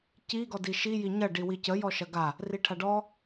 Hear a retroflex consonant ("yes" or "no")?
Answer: yes